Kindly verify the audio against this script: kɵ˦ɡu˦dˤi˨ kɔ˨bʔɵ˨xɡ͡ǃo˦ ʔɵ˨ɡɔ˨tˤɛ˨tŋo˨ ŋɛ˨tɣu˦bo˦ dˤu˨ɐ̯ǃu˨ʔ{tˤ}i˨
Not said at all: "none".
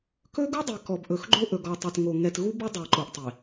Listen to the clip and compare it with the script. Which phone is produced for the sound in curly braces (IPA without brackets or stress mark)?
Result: tˤ